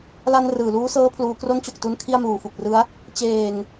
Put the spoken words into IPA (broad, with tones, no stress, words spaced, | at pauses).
la˧n rɯː˨˩luː˦˥sɤː˦˥ pʰluː˩˦kro˦˥n t͡ɕo˨˩k̚tu˧n kʰi˥˩a̯muː˨˩fu˨˩k̚rɯ˦˥a̯ | t͡ɕeː˨˩ŋ